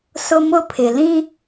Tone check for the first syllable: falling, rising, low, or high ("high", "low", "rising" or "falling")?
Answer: high